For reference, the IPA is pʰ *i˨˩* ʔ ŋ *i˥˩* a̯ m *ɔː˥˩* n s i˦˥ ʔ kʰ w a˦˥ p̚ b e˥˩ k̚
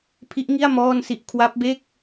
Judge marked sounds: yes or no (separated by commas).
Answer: no, yes, yes